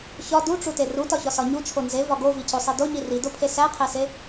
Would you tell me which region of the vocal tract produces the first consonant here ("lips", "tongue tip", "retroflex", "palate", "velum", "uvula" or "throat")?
palate